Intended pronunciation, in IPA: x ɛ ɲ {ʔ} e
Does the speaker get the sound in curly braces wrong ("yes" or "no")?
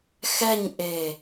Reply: no